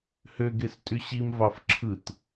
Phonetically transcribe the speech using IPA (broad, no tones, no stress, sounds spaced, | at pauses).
h ø ɡ e s tʼ y ɕ i m v ɑ f ǁʰ ɯ t